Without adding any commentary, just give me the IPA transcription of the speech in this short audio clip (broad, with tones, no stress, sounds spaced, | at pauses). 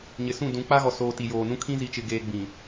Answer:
ɲ ɪ˨ s ũ˦˨ d ũ˨˦ k͡p a˦ ɣ ɔ˨ s oː˨ t i˨ j oː˨ n ũ˦ kʰ ĩ˦ z i˨ t͡ʃ ɪ˨ ɡ eː˨ ɡ͡b ĩ˨